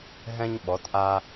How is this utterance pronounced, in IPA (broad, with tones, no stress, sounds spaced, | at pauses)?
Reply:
ɦ ɛ̃˧ ɲ ɓ ɔ˩˧ t ʔ a˧